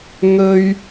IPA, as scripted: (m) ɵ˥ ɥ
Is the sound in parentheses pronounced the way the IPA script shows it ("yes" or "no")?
no